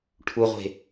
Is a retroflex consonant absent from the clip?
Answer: no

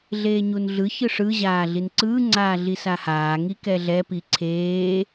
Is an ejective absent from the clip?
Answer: yes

